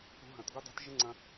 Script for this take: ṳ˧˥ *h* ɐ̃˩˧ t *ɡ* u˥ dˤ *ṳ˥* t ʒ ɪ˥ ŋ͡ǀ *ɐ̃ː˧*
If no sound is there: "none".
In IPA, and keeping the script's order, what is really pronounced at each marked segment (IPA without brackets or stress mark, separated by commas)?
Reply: ɦ, ɡ, ṳ˧˥, ɐ̃˧